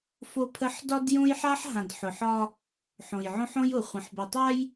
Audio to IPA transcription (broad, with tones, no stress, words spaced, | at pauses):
fo˦pʰə˦ħ dɒ˦djõ˦jħa˦ħ ɦã˨dħʊ˨ħɒ˦ | ħõ˨jʕõ˦ħõ˦j ʊ˨ χʷə̃˨ħbo˨tˤa˦j